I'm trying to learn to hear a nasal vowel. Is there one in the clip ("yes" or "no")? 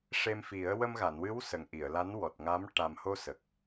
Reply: no